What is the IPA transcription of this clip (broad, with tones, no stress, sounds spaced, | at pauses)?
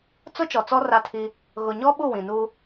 t͡s ʊ˦ t͡ʃ ɔ˨ t͡s ɔ˦ r a˦ tʰ i˦ | ɣ ʊ˨ ɲ ɔ˦ ɓ u˦˨ w ĩ˨ n uː˦